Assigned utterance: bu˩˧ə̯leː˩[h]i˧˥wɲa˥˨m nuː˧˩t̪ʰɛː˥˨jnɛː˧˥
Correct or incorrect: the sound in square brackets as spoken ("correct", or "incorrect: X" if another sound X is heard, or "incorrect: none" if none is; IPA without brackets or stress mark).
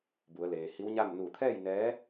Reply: correct